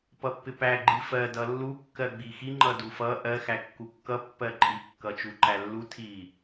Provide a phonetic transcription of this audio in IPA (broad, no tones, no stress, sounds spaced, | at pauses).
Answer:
p ʌ pː ɪ p æ ɡ͡ǃ i f ɜ d ʌ lː u kː ɜ ɡ͡b i x i ŋ͡ǃ ʌ d u f ʌ ʔ ɜ x æ kː u kː ʌ pː ɜ ǃʼ i kː ʌ t͡ʃ u ǃ æ lː u tʰ i